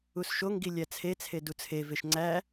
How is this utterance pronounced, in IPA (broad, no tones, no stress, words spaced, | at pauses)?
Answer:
usʃoŋɡi lʲæt͡sʰet͡sʰe dut͡sʰeveʃ ŋ͡ǀæ